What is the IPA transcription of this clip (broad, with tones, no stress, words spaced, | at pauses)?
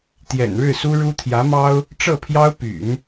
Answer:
t̪jɛ̰˨˩nɻɻ̩˥˩su˥ɻu˥ t̪ʰjä˧˥mɑ˥ʊ̯ | ʈ͡ʂɤ˥˩pʰjɑ˥ʊ̯py̰˨˩˦n